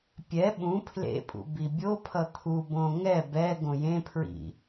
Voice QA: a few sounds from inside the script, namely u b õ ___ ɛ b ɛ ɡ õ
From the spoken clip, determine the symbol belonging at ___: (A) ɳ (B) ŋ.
B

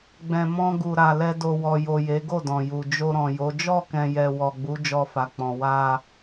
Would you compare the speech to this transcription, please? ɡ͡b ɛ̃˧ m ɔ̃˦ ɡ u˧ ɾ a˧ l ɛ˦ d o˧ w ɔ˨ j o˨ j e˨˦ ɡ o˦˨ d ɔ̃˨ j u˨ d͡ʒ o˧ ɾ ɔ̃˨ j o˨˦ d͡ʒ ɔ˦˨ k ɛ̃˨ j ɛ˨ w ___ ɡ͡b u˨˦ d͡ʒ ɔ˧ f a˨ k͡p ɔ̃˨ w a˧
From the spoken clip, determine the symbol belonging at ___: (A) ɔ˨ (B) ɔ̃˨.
A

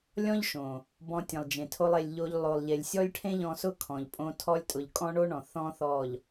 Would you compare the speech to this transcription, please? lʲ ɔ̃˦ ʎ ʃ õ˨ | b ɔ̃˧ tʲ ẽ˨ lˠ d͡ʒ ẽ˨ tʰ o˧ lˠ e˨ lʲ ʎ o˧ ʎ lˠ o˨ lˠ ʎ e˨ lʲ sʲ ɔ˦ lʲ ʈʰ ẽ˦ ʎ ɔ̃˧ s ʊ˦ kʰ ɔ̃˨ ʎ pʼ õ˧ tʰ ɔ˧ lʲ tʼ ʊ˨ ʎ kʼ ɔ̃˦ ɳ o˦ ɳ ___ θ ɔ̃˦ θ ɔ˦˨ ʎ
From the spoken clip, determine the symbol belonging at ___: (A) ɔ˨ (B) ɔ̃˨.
B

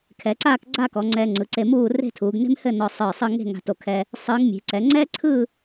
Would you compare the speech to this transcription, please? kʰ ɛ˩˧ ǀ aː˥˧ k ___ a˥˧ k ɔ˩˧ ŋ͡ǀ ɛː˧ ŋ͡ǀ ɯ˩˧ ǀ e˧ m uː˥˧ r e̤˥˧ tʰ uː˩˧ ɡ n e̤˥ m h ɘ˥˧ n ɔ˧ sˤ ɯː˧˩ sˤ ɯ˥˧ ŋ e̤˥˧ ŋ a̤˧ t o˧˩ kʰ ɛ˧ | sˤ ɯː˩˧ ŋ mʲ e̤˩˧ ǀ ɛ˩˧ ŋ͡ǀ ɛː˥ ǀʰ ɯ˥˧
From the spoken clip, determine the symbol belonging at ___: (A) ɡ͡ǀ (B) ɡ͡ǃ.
A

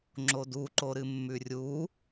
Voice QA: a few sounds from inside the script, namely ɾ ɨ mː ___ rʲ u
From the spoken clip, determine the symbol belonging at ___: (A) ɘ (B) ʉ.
B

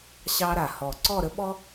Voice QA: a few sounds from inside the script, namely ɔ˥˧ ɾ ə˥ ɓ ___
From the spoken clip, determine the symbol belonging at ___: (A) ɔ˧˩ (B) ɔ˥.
B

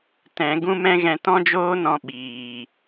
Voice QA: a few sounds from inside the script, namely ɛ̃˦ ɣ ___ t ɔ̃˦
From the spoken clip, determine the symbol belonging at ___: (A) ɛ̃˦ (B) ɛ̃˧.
B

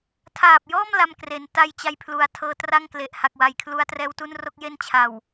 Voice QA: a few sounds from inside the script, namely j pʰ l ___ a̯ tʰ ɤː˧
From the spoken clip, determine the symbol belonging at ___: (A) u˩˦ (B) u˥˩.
A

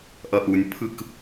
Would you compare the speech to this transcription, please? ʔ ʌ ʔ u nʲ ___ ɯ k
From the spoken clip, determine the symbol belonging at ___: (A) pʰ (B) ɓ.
A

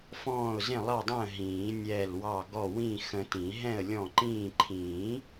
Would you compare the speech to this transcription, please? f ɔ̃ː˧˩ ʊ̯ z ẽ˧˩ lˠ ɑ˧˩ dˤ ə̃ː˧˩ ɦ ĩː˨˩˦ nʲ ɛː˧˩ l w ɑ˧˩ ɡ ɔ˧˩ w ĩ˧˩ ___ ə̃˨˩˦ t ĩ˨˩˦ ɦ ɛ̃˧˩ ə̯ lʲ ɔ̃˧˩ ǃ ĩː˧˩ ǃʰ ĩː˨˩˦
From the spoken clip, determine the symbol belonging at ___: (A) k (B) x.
B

